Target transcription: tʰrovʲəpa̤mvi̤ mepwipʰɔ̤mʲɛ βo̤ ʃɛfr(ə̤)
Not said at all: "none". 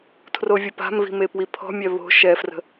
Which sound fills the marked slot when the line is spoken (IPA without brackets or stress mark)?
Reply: ə̤